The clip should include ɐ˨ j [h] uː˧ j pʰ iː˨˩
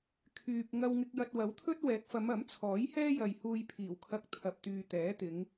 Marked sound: correct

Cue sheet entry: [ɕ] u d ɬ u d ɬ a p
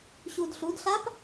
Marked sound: correct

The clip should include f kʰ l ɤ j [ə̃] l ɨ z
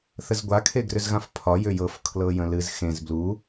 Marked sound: correct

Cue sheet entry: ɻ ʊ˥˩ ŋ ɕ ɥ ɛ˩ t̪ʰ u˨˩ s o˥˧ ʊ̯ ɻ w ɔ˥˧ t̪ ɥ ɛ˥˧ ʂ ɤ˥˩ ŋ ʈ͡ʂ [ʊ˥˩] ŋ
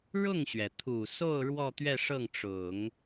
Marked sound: incorrect: ʊ˨˩˦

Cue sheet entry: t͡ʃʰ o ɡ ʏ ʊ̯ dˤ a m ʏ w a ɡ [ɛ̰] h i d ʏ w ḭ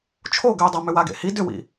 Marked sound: incorrect: ḛ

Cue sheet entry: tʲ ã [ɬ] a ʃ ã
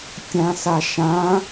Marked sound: incorrect: s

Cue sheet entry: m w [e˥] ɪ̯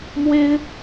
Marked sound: correct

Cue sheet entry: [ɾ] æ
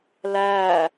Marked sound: incorrect: l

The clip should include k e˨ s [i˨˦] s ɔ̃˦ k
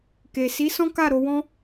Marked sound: correct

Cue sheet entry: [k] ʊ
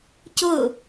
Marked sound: incorrect: c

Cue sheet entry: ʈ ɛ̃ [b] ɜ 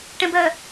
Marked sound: correct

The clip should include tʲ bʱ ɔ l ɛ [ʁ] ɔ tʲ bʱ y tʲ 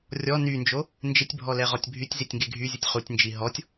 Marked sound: correct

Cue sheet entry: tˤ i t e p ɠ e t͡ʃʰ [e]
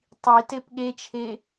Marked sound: correct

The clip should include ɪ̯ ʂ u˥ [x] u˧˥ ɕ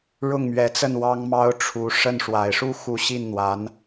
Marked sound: correct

